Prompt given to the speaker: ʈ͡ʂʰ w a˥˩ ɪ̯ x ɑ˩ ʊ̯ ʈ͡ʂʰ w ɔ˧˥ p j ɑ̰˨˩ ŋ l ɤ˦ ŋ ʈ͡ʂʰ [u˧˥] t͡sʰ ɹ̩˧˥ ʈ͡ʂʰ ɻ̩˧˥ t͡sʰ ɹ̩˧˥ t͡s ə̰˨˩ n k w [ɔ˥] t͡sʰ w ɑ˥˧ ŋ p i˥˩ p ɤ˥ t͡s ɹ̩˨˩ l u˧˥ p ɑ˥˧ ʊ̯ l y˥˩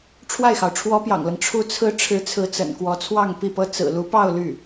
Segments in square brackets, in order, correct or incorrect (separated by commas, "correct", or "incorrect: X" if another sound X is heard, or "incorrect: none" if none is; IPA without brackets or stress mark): correct, incorrect: ɔ˧˥